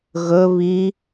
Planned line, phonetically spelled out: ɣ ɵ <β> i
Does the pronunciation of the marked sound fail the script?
no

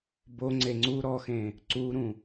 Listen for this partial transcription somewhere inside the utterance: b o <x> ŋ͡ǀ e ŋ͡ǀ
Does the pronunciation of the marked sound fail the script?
yes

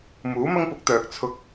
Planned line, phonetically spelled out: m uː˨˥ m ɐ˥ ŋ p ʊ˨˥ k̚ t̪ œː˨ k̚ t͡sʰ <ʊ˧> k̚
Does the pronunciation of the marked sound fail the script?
no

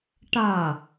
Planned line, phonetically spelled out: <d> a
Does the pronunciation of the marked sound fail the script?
yes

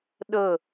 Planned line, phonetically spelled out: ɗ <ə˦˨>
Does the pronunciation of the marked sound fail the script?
no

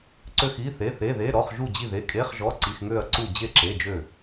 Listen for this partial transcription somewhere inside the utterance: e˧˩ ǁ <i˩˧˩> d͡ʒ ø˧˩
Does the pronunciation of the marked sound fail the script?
yes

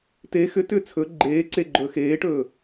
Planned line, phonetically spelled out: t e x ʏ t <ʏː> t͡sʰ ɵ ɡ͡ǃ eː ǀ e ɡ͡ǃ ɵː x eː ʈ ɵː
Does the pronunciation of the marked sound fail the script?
no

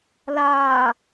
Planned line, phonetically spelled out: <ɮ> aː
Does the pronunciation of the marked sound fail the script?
yes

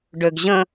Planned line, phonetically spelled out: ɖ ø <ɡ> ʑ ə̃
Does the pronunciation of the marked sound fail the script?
no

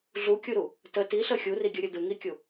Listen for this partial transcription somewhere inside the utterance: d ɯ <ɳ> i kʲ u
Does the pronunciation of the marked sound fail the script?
yes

